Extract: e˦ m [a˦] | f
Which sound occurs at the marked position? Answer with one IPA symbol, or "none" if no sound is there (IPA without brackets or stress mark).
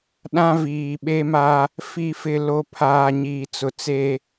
a˦